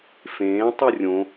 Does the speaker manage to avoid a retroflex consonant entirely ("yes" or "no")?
yes